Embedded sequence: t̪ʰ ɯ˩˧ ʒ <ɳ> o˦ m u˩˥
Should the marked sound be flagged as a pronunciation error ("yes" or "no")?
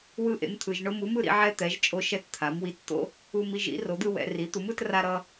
no